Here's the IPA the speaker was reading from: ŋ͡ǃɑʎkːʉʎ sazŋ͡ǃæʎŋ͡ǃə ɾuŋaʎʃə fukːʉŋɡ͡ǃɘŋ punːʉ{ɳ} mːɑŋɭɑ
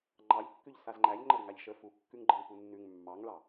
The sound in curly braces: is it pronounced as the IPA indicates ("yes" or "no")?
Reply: no